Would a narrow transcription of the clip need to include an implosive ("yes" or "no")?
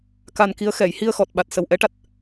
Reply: yes